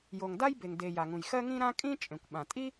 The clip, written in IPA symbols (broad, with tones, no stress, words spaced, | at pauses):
jo˩ŋda˥jbe˩ŋ de˩ ja˩ŋũ˩jxɜ˥ ŋĩ˥ɾã˥ kʼĩ˥ t͡ʃʼẽ˩kʷɓã˩ tʼi˥